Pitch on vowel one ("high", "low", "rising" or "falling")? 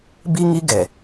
high